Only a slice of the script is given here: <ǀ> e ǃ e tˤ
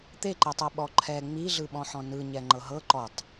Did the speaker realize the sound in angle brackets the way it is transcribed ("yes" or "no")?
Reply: no